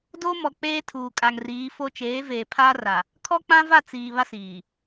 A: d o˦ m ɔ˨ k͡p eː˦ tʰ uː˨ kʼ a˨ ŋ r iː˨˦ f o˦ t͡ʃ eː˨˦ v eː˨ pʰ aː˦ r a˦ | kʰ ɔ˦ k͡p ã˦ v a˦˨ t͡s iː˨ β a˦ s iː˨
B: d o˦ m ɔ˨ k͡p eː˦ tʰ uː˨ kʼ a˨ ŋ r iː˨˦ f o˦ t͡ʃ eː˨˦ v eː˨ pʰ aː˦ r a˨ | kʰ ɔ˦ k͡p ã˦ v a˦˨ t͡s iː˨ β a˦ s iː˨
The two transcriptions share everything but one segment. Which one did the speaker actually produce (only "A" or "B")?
B